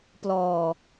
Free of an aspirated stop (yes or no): yes